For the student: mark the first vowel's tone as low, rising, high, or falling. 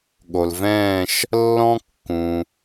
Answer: low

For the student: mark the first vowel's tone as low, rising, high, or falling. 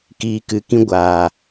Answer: low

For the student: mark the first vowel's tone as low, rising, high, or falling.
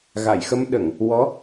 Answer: low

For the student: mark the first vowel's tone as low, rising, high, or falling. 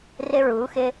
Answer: high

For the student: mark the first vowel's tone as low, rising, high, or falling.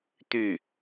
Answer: falling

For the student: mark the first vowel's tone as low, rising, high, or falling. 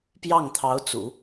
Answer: falling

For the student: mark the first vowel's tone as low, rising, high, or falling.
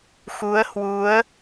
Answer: rising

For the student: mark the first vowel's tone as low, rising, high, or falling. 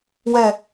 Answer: falling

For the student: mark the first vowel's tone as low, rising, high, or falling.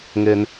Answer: high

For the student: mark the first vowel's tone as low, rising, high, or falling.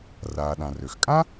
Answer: low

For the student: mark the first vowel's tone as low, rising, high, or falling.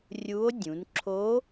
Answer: rising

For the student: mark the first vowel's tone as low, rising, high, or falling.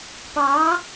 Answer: rising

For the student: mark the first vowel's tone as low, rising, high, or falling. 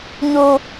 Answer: high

